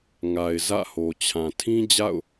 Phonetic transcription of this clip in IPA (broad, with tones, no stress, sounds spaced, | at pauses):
ŋ a˨ ɪ̯ z ä̰˦˨ h o˨ t͡ɕʰ ã˨ tʰ ĩ˦ d͡ʑ a̰˦˨ ʊ̯